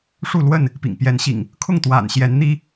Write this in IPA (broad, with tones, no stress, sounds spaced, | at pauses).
ʂ u˥˨ l w ə˥˨ n | p ḭ˨˩ ŋ p j ɛ˨˦ n ɕ ḭ˨˩ ŋ | kʰ ʊ˥˨ ŋ t̪ w a̰˨˩ n ɕ j ɛ˨˦ n n̪ i˦